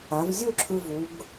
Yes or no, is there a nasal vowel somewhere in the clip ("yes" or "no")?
no